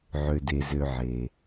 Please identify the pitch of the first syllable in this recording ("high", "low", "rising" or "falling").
low